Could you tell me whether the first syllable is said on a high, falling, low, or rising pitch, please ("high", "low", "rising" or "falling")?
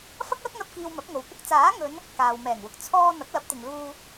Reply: high